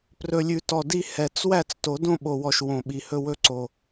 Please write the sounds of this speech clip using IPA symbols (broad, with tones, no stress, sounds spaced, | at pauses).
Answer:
p r ɵ˨˩ lʲ ʉ˨˩ t ɔ˨˩ d i˥˧ h ɛ˨˩˦ t͡s w æ˥˩ t͡s t o˨˩˦ d õ˥˧ ɓ o˨˩ w ɔ˨˩ ʃ w õ˨˩ ɓ i˨˩ h ɵ˥˧ w ɵ˥˧ ǀ o˨˩